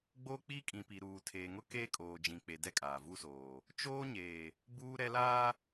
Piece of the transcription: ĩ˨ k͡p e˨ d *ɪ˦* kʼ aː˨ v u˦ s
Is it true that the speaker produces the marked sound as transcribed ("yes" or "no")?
no